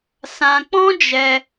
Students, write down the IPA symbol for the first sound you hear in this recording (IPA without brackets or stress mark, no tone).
s